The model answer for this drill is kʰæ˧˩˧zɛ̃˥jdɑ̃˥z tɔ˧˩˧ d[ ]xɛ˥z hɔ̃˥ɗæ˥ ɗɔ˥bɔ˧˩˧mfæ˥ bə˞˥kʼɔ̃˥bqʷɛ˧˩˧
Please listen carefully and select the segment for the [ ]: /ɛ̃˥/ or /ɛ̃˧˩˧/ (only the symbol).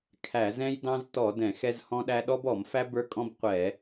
ɛ̃˧˩˧